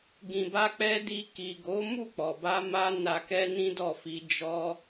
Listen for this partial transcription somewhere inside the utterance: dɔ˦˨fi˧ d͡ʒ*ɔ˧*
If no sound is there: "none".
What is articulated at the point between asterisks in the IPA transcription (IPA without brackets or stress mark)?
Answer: ɔ˧